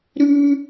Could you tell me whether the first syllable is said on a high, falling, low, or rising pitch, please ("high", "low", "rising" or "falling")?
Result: high